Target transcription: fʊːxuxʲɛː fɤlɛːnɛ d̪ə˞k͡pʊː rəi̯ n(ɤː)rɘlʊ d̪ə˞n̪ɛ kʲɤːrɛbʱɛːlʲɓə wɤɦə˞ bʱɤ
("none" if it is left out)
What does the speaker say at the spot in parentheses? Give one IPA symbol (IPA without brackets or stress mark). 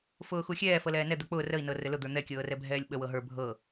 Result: ɤ